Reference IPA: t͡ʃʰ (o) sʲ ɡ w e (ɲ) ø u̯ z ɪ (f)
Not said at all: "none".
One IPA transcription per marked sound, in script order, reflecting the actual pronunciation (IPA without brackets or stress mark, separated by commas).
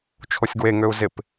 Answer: o, ŋ, p